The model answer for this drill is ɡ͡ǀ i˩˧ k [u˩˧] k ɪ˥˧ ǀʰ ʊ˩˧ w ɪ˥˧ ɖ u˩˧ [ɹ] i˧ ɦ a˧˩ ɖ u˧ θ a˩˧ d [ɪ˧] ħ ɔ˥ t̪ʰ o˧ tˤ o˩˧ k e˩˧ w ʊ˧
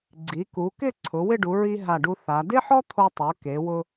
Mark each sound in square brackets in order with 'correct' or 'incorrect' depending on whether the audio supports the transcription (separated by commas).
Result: correct, correct, incorrect